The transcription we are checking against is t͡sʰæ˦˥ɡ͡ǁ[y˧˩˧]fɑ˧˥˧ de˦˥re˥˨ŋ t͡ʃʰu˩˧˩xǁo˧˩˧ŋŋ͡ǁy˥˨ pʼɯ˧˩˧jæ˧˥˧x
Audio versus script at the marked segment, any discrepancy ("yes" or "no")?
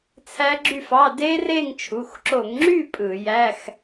yes